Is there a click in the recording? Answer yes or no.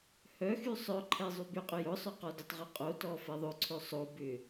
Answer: yes